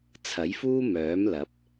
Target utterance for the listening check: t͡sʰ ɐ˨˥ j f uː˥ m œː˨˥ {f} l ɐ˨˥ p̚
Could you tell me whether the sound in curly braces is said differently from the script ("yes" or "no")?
yes